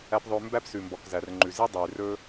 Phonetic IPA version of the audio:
æ˧pðˤɵː˧ mbæ˦psʉ˨mbɔ˨k zæ˨rŋ͡ǃʉ˨ ze˦dˤʉː˨rɵː˦

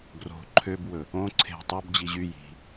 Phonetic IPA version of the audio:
ɡro̤ ǃʰøbwɵ | õ ǀʰe̤ tˤob d͡ʑiʑy ji̤

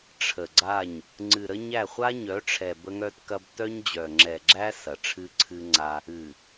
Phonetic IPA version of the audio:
ʈ͡ʂʰə˨ɡ͡ǀa˦˨ɲ | ŋ͡ǀɨ˨ ɾə˦ɲæ˦˨ χʷa˦ɲœ˨˦ʈ͡ʂʰɛ˨ bə˦ŋœ˦tkɐ˦b tœ˦ɲd͡ʑœ˨ŋ͡ǁɛ˨ɡ͡ǁæ˦ sɐ˨ʈ͡ʂʰɨ˦ǀʰɨ˦ŋ͡ǀa˦ | ɨ˨

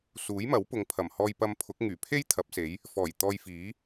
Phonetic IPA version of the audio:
suː˨˥jmɐ˨˥w pʊ˨ŋpʰɐ˨˩mhɔː˧jpɐ˧m pʰʊ˨˥k̚ ŋyː˨˩pʰe˥j t̪ʰɐ˨˥p̚se˨˥j | fɔː˨˩j t̪ɔː˧jfiː˨˥

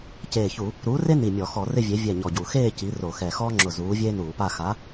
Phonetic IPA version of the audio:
ceː˧˩çu˧˩˧ | ɾuː˨˥re˥ ni˧˩mʲɔ˧˩˧ xɔ˧˩˧rɪ˥˧vʲe˨˥ vʲɛ˧˩ ɲɔ˧˩ɟu˧˩˧ xeː˥˧ ci˨˥ro˧˩˧xɛ˧˩ xɔː˥ŋ͡ǁʊ˧˩ zuː˨˥vʲeː˥nuː˧˩˧pa˥˧ xa˨˥

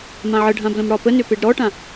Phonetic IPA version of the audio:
mãʕəɖʱã blə̃mɽɒpənʏ peɖɾɔʈã

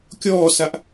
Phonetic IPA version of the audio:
kʲɔːsaʔ

